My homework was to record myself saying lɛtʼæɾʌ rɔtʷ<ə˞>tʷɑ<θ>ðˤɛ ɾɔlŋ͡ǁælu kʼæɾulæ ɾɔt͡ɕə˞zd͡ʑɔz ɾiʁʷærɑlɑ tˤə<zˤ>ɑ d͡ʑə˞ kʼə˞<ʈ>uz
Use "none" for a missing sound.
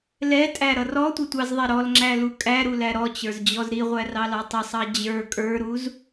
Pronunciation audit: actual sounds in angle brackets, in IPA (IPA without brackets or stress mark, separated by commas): ʌ, z, sˤ, ɾ